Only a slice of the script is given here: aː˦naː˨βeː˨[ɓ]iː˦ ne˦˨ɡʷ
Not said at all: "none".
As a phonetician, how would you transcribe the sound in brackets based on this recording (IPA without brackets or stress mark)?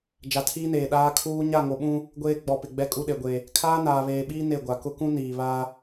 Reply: ɓ